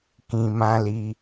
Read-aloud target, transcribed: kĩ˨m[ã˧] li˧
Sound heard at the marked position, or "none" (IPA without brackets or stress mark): ã˧